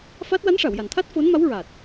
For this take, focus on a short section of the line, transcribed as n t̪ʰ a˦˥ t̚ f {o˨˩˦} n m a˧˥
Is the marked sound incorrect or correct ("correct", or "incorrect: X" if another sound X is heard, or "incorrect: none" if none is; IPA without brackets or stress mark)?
incorrect: o˧˥